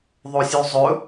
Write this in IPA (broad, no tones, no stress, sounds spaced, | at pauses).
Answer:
ðˤ o sʲ ʉ zˤ ɵ